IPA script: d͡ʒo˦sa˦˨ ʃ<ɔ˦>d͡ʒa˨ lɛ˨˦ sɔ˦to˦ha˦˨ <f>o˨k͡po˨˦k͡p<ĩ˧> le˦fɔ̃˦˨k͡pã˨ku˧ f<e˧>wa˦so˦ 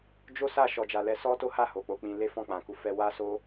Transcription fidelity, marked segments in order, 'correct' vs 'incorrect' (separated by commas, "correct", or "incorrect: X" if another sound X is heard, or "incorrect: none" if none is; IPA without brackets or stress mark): incorrect: ɔ˨, incorrect: h, correct, incorrect: ɛ˧